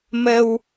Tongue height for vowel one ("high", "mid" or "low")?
mid